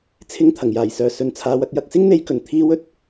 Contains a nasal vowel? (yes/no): no